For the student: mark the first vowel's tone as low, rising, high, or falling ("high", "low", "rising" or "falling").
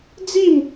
falling